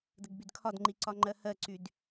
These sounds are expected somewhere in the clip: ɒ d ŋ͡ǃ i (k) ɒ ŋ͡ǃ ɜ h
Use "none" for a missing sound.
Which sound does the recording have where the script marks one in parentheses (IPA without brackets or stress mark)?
ǀ